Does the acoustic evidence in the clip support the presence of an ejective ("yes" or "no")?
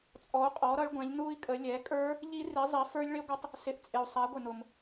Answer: yes